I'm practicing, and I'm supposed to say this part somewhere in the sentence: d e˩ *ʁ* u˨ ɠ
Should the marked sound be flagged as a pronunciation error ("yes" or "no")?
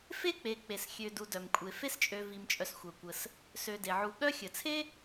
yes